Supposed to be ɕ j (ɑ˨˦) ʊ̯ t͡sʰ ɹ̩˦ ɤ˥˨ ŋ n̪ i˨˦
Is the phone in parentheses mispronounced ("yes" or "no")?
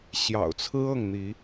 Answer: yes